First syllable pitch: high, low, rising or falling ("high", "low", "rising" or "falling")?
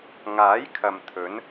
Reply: rising